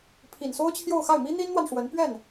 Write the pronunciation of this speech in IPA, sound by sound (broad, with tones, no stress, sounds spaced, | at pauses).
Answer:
pʰ i˨˩ n s o˥ ʊ̯ t͡ɕʰ j o˥˧ ʊ̯ x a˥˩ ɪ̯ m i˥ n̪ i˥ n n̪ w a˨ n ʂ w ə˧˥ n p ɥ ɛ˥˩ n